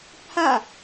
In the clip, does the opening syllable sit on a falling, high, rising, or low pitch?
falling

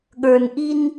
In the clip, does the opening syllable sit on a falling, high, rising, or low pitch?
low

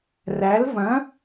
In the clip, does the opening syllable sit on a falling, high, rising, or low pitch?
rising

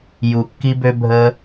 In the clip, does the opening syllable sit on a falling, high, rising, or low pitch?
low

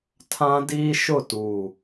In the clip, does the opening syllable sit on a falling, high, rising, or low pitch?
high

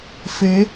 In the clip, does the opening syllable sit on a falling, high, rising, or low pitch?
rising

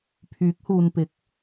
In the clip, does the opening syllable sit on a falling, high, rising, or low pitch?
rising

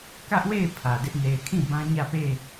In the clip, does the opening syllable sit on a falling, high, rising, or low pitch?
high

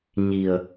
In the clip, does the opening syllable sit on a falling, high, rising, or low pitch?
low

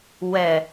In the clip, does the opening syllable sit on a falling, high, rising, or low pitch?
low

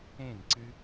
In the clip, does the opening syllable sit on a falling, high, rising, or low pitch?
falling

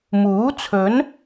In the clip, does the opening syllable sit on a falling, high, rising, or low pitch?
rising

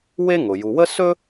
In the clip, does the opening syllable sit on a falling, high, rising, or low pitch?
high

